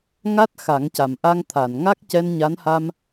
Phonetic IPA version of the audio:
ŋ a˦˥ t̚ x a˨˩˦ ŋ c a˨˩ m ʔ a˧ ŋ t̪ʰ a˨˩˨ n ŋ a˦˥ k̚ c ɛ˧ n ɲ a˧˥ n h a˧ m

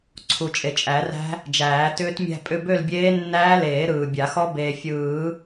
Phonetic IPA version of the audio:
ǀʰ u˨ t͡ʃʼ e˨ t͡ʃʼ æ˨˩˦ r æ̤˦˥ | d͡ʒ æː˨˩˦ t ʏː˦˥ t mʲ æ̤˥˧ pʼ ʏ˥˧ b ø˥˧ l bʲ eː˦˥ nː æː˦˥ l eː˨˩˦ ɾ ɯː˨ bʲ a˨˩˦ x ɔ˦˥ b eː˨ fʲ ɯː˨˩˦

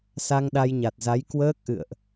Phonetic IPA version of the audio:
s a˧ ŋ ɗ a˧ j ɲ a˨˩ t̚ z a˨˦ j k w əː˦˥ k̚ ʔ ɨ̰˧˨ ə̯ ʔ

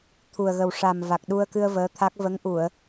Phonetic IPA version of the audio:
t̪ʰ u˨˩ ə̯ ɣ ə˨˩ w ʂ a˨˩ m v a˨˩ k̚ ɗ u˧ ə̯ k ɨ˧ ə̯ v əː˧˥ t̪ʰ a˦˥ k̚ v ə˧˥ ŋ ʔ u˨˩˨ ə̯

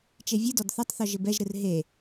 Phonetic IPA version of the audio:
t͡ʃ e vʲ ɨ d ɔ d θ ɐ tˤ θ ɔ ʒ ɘ b ɛ ʒ ɾ ɨ r ɦ e

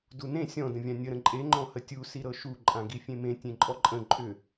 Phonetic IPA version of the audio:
d u n ẽ sʲ ɔ̃ d ə̃ vʲ ã nʲ ə ɾ ə̃ ǃʼ e ŋ͡ǃ ɔ̃ h ə tʲ u s i ɾ ɤ ʃ u ǃʼ ã ɡ i fʲ ẽ m ẽ tʲ ẽ ǃʼ ɔ ǃʼ ə̃ ǃʼ ʏ

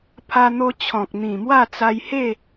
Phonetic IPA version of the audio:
pʰ a˧ n̪ o˧ t͡ɕʰ ɔ̃˨ k̚ n̪ ĩ˨˩ m w a˥˧ t͡s a˧ j h e˥˧

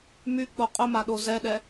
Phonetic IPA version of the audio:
m y k͡p o qʼ ʊ m a ɗ o z ɛ ɗ ɛ

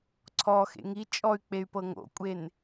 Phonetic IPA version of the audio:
ǀʰ ɔ x ḛ ŋ i t͡ʃʼ ɔ y̯ k͡p e y̯ p ɤ ŋ o̰ kʷʼ e n

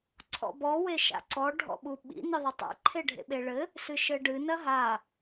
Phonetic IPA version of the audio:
ǀʰ ɔ̰ b ɔ w e ʃ a̰ ǀ ɔ ɖʱ ɔ̰ ɓ u ɓ ḭ n ɨ ðˤ ɐ tˤ a̰ ǃʰ e ɖʱ ḛ ɓ e ɭ ɘ | s ɨ ʃ ɘ ɖ ɨ n ɐ ɦ a

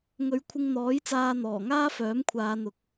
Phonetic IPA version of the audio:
ŋ ɵ˨˧ ɥ kʷʰ ɪ˧ ŋ n̪ ɔː˨˥ j t͡s aː˧ n̪ ɔː˨˩ ŋ aː˥ f œː˨˥ m kʷʰ aː˨˧ n̪ ʊ˨ k̚

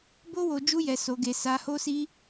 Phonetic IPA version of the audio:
b o˦ w o˧ d͡ʒ u˦ j ɛ˧ s o˧ ɡ e˧ s a˧ h o˦ s i˦

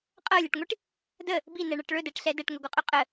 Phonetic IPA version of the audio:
qʼ ɤ lʲ ɛ ʈ ŋʷ i ʈ | d ə | b i n ɛ ɳ ɤ ʈ ɭ ɵ d ɛ ʈ ɬ ɛ d ɛ ʈ ŋ ɵ ɡʷ ɤ qʼ ɵ qʼ ə

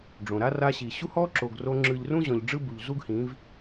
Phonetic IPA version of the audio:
ɖ͡ʐ õ˨ ɾ a˦ r a˧ ɕ i˨ ɕ u˦ h ɔ˦ ǁ o˨ ɡ r o˧ ŋ͡ǁ ɯ˨ ʎ r ũ˦ ʑ ɔ̃˨ ʎ ɖ͡ʐ ɯ˦ b u˨ ʎ z u˦ ɡ h ĩ˨˦ v

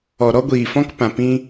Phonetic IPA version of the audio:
ɔ˨ ɾ ɔ˧ ɡʷ iː˨ f ɔ̃˧ k p ã˨ p ĩ˧

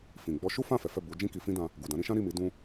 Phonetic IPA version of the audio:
f ĩ˨ ɡ͡b ɔ˧ ʃ u˦ f ã˦˨ f ɛ˨˦ f ɛ˦˨ b u˨˦ d͡ʒ ĩ˦ k i˧ f ĩ˦ d ã˧ | ɡ u˨ d ã˨˦ ɾ ĩ˧ ʃ ã˦ ɾ i˦˨ m i˨˦ d ũ˦

